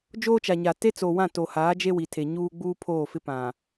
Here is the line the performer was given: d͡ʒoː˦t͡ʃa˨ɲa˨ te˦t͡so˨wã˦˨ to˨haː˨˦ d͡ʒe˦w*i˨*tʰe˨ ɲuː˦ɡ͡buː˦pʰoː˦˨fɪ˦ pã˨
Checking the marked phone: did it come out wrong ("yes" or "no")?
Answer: no